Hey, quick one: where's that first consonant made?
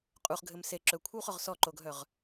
uvula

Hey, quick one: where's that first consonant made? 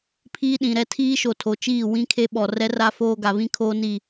lips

